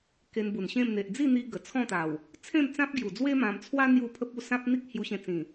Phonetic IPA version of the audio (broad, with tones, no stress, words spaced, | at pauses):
ke˧nbu˨˩nɕẽ˥˧m n̪e˨ʔd͡zi˥˧n̪i˧ ɡə˨˩t͡sʰɔ̃˥˧t̪a˨˩w | t͡sʰẽ˥˧mt͡sã˦p̚ ɡju˨˩d͡zwe˦ mã˧m t͡sʰwa˦ n̪ju˥˧pʰə˦p̚ u˥˧sã˦p̚n̪i˦k̚ hju˧ɕẽ˧t͡sĩ˨˩